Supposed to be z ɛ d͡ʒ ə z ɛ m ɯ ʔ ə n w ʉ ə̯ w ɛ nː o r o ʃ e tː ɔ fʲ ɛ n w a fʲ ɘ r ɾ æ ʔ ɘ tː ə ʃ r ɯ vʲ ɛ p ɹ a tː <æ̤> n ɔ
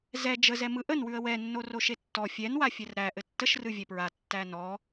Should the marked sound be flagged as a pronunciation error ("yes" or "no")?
yes